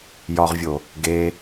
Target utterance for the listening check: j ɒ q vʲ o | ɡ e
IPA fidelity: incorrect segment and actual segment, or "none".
q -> ʁ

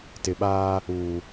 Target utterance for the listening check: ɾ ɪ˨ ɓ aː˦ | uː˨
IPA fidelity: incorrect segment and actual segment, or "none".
ɾ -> t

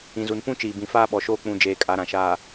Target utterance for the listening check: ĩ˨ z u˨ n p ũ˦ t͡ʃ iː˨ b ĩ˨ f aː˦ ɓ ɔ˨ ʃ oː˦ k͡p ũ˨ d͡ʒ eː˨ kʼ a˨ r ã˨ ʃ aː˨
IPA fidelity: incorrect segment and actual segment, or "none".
r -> ɾ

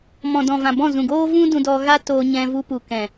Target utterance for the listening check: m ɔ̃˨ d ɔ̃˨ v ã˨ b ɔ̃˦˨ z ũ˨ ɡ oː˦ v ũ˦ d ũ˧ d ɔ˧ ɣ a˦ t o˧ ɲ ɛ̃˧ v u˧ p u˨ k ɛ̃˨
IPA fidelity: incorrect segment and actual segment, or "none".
o˧ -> oː˧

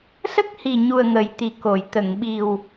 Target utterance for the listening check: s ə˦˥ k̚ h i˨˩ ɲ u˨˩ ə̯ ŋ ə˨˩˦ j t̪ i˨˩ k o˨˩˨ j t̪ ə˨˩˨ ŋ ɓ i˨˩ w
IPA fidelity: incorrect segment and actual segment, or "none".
none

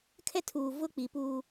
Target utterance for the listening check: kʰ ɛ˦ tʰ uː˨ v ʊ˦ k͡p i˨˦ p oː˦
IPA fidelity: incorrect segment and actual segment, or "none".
oː˦ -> uː˦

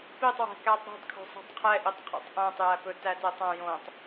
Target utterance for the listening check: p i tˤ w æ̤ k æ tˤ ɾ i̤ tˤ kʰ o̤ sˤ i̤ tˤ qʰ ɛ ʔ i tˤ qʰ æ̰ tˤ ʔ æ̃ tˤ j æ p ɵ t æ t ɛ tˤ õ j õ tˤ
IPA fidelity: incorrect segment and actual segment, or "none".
none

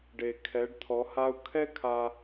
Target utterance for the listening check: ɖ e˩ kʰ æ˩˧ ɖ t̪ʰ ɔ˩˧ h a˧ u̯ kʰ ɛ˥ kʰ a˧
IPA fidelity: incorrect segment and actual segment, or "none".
æ˩˧ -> ɛ˩˧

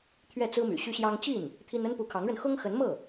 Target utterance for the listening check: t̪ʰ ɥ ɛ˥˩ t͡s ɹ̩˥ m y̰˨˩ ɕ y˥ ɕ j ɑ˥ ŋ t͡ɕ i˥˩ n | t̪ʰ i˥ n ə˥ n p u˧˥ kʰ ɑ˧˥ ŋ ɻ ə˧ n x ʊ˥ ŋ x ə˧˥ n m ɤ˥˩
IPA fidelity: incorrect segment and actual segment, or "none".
none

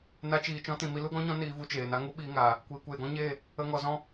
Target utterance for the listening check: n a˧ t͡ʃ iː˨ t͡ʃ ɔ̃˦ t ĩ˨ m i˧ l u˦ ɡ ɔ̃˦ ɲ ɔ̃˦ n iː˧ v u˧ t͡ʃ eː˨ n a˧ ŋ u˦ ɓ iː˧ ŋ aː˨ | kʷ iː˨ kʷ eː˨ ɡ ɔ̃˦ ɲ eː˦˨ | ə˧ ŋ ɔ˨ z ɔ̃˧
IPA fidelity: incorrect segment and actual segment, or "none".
none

